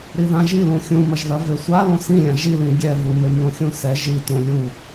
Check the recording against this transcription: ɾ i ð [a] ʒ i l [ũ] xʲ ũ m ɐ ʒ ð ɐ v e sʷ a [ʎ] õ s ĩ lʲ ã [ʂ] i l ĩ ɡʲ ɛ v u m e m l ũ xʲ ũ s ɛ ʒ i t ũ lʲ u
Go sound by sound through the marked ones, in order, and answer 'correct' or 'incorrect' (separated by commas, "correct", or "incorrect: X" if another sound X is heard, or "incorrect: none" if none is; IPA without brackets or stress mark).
incorrect: ã, correct, incorrect: l, incorrect: ʒ